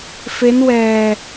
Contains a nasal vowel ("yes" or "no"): no